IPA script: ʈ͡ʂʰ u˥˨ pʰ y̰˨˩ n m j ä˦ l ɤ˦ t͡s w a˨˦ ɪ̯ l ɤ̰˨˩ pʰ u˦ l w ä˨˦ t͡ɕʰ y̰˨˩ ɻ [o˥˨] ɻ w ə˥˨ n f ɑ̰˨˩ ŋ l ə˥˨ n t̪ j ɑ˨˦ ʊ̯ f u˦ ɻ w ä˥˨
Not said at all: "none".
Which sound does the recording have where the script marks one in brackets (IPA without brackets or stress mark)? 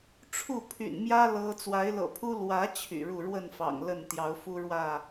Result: u˥˨